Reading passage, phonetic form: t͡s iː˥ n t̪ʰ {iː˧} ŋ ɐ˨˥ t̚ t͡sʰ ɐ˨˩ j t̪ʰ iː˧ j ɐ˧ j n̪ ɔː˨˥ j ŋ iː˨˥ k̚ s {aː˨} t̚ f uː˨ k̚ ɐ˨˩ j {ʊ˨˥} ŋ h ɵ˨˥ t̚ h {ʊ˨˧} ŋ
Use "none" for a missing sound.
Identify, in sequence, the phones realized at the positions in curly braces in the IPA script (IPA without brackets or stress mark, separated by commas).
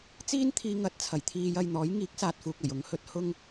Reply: iː˧, aː˨, ʊ˨˥, ʊ˧